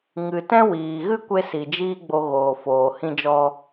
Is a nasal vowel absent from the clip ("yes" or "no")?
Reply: no